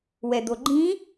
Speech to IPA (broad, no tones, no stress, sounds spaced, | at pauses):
w ɛ d̪ o ɡ͡ǃ ĩ